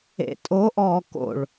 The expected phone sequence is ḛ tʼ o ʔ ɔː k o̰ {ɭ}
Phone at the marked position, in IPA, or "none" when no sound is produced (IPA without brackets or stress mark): ɭ